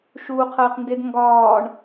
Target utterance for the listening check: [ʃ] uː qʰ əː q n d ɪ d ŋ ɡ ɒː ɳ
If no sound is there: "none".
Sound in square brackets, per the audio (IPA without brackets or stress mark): ʃ